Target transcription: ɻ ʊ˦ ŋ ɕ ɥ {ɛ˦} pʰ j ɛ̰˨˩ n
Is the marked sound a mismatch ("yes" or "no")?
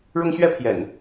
no